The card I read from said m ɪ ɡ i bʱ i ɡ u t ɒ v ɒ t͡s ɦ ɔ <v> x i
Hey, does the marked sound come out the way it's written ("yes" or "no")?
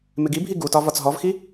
yes